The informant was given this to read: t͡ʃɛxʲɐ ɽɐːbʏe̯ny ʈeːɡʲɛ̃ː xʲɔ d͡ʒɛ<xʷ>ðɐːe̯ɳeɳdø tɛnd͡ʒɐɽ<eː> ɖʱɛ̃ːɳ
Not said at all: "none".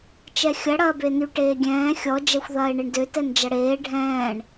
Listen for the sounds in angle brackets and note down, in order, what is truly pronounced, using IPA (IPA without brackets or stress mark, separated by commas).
xʷ, eː